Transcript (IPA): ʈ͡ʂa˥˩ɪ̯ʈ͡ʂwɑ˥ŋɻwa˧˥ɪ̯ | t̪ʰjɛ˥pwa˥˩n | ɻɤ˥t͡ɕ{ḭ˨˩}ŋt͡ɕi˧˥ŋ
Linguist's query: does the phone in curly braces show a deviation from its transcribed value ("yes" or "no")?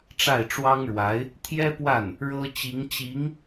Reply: yes